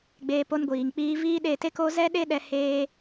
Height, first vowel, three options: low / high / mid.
mid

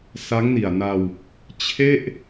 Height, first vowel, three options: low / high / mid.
low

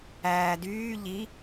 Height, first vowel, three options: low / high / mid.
low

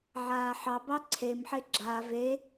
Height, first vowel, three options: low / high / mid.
low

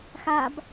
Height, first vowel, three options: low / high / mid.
low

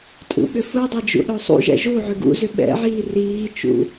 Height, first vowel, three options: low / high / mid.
high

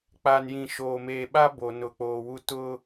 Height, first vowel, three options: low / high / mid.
low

